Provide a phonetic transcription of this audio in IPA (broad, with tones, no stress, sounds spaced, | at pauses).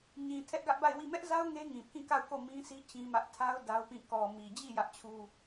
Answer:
ɲ ĩ˨ tʰ ɛ˦ ʔ ɡ ä˦ ʔ b a˦˨ ɪ̯ w i˦˨ m ɛ˦ ʔ z a˦ ʊ̯ ŋ e˦ ŋ ĩ˨ pʰ ĩ˦˨ k a˦˨ ʊ̯ k o˦˨ m ĩ˦ s i˦ t͡ɕ ĩ˦ m ä˦ ʔ tʰ a˦ ʊ̯ d a˦ ʊ̯ p ĩ˦˨ k ɔ˨ m i˨ d͡ʑ i˦˨ j ä˦ ʔ t͡ɕʰ u˦